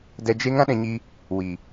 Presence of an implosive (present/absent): present